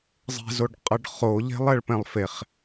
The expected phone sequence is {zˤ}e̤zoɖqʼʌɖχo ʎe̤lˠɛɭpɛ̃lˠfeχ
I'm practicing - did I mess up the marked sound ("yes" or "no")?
no